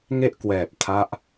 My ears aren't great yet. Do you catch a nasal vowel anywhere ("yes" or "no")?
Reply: no